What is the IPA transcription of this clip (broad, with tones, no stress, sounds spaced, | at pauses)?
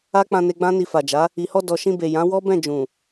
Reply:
a˦ k͡p ã˧ n e˧ ɡ͡b ã˦ n i˧ f a˨ d͡ʒ a˨˦ | i˨ h ɔ˧ d ɔ˨ ʃ ĩ˧ b e˨ j ã˨˦ w ɔ˦ b ɛ̃˦˨ d͡ʒ ũ˨